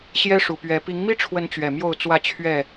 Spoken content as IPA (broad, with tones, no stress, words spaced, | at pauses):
ɕjɛ˦ʂu˨˩pɥɛ˨˦ pi˨˦ŋmi˦ʈ͡ʂʰwə˨˦n t͡ɕɥɛ˨˩mjo˥˨ʊ̯t͡swä˥˨t͡ɕʰɥɛ˥˨